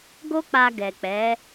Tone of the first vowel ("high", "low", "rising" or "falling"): high